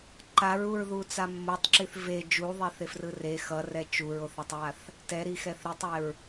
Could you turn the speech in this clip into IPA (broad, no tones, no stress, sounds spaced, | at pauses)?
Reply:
ǃ a ɹ u ɹ ð u t͡s a mː o tˤ ǁ i θ v e d͡ʒ u ðˤ e θ e f r ɯ r e x ʌ r ɛ t͡ʃ u ɹ o θ a tˤ ɹ a θ | t ɛ ɾ i x ɛ θ ɾ i tˤ ɛ ɹ